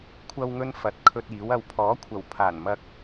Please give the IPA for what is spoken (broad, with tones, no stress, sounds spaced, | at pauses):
kʷʰ ɐ˧ w ŋ ɵ˧ n f ɐ˨˥ t̚ kʰ ɵ˧ t̚ iː˨˥ w ɐ˧ w pʰ ɔː˨˥ kʷʰ ɐ˨˩ w pʰ aː˨˩ n m ɐ˧ k̚